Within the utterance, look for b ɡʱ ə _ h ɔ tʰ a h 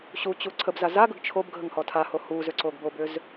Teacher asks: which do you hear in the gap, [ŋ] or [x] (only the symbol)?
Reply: ŋ